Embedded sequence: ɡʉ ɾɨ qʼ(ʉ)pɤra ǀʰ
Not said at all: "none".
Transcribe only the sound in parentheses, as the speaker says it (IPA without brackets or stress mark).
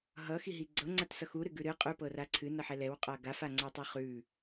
ʉ